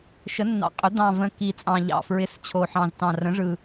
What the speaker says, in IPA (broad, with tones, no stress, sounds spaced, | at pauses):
ʃ ə˩˥ nː ɑ̰˨˩ qʼ ʏ˩˥ d̪ ɑ̃˨˩ v ə̃˨˩ k i˨˩ t͡sʼ ɑ̃˨˩ ʎ ɑ̰˨˩ f ɹ ɪ˩˥ s t͡ɕʰ o˨˩ ħ ɑ̃˨˩ z t ɑ̃˨˩ r ə̃˩˥ ʐ ɯ˨˩